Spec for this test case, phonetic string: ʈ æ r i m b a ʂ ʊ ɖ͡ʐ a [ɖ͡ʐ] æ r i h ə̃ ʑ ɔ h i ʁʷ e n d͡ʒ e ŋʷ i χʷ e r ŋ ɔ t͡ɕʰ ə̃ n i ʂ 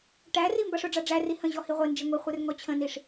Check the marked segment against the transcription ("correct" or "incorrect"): correct